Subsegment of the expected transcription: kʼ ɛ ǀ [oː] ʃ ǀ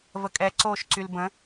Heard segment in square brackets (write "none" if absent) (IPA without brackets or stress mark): oː